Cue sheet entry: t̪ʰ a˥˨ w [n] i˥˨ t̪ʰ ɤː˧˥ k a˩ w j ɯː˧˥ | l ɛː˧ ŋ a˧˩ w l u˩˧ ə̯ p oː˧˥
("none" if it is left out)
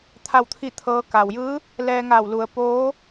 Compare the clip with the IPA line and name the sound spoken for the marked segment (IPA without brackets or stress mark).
t̪ʰ